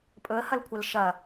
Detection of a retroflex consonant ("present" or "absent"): absent